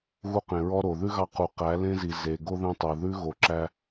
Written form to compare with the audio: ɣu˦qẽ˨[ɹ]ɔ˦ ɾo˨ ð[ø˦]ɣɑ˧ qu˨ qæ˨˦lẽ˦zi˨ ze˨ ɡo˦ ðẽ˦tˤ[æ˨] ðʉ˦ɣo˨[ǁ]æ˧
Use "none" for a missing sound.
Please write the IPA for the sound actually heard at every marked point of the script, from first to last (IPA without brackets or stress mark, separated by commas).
ɹ, ʉ˦, œ˨, ǁ